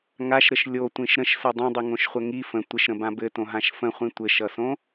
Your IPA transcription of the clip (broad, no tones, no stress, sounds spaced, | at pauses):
ŋ a ʃ ɾ ə ʃ lʲ o tʷ ĩ ʃ ɾ ə̃ ʃ s ɘ dˤ ĩ dˤ i ŋ õ ʃ χʷ ə ŋ i f ə̃ tʷ ɘ ʃ ɾ ə̃ b ã b ɘ t õ ɦ ã ʃ f ə̃ χʷ ĩ tʷ ɘ ʃ ʌ s õ